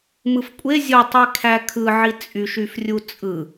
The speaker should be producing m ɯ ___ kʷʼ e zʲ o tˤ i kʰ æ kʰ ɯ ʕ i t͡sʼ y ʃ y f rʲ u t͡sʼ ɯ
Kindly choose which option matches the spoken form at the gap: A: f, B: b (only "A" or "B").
A